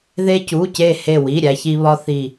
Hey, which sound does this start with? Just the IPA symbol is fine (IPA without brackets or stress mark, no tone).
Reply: ð